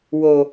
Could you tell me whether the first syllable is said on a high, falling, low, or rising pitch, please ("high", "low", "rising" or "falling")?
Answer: low